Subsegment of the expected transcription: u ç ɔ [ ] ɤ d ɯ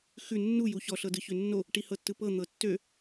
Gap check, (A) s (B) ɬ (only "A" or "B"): B